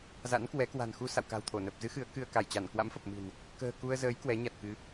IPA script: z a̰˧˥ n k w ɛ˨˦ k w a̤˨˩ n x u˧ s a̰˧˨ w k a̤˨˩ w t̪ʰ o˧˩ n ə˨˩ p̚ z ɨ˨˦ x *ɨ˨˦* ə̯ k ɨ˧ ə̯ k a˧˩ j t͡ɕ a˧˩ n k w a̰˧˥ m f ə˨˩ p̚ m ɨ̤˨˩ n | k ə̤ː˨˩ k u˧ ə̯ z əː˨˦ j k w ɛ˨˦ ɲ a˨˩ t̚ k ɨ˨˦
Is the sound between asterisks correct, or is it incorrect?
correct